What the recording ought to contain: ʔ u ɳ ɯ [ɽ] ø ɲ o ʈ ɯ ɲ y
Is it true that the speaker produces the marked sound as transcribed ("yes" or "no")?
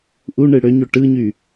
yes